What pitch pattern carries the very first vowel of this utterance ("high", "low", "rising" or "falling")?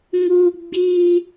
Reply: high